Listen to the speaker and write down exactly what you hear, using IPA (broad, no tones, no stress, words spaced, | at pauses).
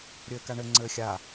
ɾʲɘːkaɳɘ ŋ͡ǀɘːxʲa